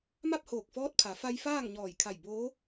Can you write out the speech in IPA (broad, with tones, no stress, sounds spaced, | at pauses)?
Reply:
m a˥˨ p̚ h oː˧˩ k̚ f ɔː˧˥ t̚ pʰ a˩˧ f a˧ j f aː˥˨ ŋ ɲ ɔː˧˩ j kʰ a˧˩ j b oː˧˥